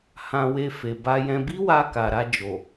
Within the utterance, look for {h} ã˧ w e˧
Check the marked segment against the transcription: correct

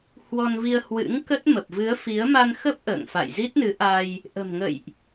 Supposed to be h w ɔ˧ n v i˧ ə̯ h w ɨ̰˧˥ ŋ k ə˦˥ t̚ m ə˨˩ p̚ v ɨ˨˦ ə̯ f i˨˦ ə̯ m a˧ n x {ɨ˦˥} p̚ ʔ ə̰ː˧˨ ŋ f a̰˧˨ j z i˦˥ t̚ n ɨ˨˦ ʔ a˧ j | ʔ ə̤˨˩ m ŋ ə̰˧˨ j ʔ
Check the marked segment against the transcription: incorrect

